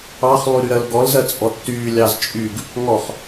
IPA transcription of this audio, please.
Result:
ɑ χ lˠ y ɾ y ɾ ɜ l ɡ ɔ l z ɜ t͡sʼ ɔ tː yː lʲ ɑ z t͡ʃʼ y ɡ | ŋ ɔ χ

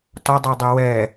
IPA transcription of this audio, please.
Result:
t ɒ dˤ ɤ dˤ ɛ w ɛ

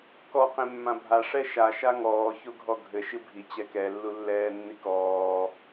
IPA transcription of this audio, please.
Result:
k ɔ q ẽ mː ã bʱ a ʂ ɛ ʃ a ʃ a ŋ ɔː ç o ɡʱ ɔ ɡʱ ɘ ʃ ɨ bʱ i t͡ɕ ɛ k ɛ lː u lː ɛː nː i k ɔː

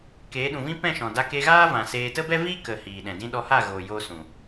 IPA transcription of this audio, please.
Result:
k eː˨˦ ɗ ũ˨ v ĩ˦ p ɛ̃˦˨ ʃ ɔ̃˨ d a˧ k e˧ ɣ aː˦ v ã˨ s eː˧ t ə˦ b ɛ˦ v iː˦ k ə˨ h iː˨ ɗ ɛ̃˨ d ĩ˦ ɗ ɔ˧ h a˦˨ ɣ oː˨ j oː˧ s ũ˨

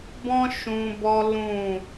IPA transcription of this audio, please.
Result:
b ɔ̃˦ ʃ ũ˧ b ɔ˦ l ũ˦˨

